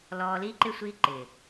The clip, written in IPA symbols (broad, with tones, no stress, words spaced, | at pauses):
lɔː˧liː˦ǃɪ˦ sʷi˦ǃɪː˨